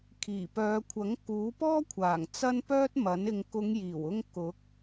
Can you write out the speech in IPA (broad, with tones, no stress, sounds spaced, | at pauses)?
kʰ iː˨˩ p œː˨˧ kʷʰ ɐ˨˥ ŋ k uː˨˥ p ɔː˥ kʷʰ aː˨˩ ŋ t͡s ɐ˥ n p œː˥ t̚ m ɐ˨˥ n ɪ˨ ŋ k ʊ˨˧ ŋ j iː˨˩ w ʊ˧ ŋ k ʊ˨˥ k̚